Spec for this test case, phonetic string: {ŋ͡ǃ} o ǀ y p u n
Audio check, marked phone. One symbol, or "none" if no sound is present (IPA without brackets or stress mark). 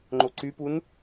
ŋ͡ǃ